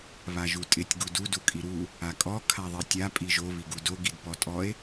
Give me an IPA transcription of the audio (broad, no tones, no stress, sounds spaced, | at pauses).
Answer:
β a ʒ u tʼ ɪ tʲ ɡ u d u d u kʼ i ɾ u | a kʼ ɔ kʰ a ðˤ i tʲ a pʼ i ʒ o β i ɡ u d o ɡ i d p ɔ tʼ ɔ e̯